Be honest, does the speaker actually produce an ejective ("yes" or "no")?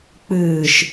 no